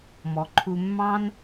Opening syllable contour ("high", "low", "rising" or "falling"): low